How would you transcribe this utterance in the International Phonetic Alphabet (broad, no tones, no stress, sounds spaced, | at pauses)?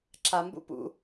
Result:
ǁʰ a m b ṵ p ṵ